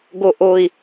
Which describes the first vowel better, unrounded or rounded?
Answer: rounded